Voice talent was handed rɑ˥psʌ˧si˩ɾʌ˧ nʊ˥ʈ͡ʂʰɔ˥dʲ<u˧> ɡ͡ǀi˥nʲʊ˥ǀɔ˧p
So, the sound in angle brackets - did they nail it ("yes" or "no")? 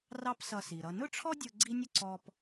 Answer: no